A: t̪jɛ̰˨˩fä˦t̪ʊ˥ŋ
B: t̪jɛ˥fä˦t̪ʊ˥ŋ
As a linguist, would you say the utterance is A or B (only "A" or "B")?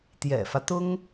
A